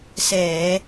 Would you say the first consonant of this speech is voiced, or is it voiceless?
voiceless